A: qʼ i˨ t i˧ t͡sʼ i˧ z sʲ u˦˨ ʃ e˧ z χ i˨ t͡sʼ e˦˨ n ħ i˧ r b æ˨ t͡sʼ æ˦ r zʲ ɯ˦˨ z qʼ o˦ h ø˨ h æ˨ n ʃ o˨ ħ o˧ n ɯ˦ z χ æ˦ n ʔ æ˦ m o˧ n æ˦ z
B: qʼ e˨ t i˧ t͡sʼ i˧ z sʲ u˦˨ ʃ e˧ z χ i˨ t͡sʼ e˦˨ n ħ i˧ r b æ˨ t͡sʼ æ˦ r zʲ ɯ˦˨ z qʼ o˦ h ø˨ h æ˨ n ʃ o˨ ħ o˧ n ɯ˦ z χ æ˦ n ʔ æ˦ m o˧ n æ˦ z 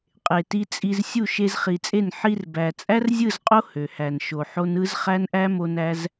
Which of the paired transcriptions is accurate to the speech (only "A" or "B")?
B